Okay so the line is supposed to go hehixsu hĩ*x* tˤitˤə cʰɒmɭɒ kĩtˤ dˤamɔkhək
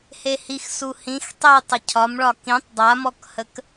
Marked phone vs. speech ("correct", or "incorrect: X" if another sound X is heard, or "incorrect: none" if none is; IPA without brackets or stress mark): correct